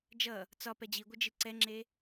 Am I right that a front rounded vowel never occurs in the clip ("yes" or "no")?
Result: yes